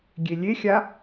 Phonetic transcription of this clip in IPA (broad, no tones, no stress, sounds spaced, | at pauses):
ɡʲ e lʲ e xʲ a